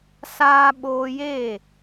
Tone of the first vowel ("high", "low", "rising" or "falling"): high